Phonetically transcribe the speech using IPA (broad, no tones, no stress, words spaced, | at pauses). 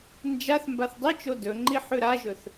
nd͡ʒaθ mbaθdˤit͡ʃo dɵŋ͡ǃi ħʉɾaʒɵθ